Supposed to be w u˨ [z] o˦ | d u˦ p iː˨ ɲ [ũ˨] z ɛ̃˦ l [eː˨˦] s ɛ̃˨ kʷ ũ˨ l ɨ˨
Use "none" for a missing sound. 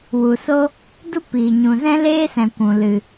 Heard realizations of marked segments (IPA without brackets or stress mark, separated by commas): s, ũ˨, eː˦